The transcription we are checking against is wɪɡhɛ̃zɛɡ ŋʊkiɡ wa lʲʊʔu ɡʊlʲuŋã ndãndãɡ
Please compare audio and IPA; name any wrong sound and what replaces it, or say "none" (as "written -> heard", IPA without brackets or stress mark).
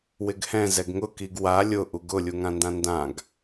none